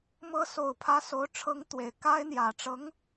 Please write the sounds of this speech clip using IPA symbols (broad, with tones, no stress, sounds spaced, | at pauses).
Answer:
m ɤ˧˥ s o˨˩ ʊ̯ pʰ ä˧˥ s o˧˥ ʊ̯ ʈ͡ʂʰ ɤ˧˥ ŋ t̪ w e˨˩ ɪ̯ k a˥ ɪ̯ n̪ j ä˨˩ ʈ͡ʂ ɤ˧˥ ŋ